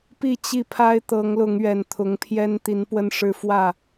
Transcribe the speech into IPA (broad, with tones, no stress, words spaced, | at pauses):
pi˥˨t͡ɕi˥˨ pʰa˦ɪ̯t̪ɤ˨˦ŋlʊ˨˦ŋ ɥɛ˨˩nt̪ʰʊ˨˦ŋpʰjɛ˦n t̪i˨˦npwə˦nʂɻ̩˦fwä˥˨